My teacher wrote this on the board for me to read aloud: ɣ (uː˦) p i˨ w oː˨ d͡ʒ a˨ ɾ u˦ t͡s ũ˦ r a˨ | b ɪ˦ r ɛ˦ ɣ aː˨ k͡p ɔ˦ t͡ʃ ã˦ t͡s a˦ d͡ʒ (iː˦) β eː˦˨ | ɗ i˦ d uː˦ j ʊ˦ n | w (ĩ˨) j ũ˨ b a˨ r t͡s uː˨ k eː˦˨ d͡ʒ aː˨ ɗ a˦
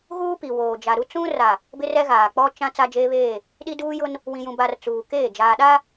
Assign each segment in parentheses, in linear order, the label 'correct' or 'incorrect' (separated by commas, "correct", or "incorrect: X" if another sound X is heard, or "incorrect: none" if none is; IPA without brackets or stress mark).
correct, incorrect: eː˦, correct